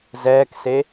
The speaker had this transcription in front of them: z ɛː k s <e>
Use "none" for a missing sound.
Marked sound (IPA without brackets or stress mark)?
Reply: e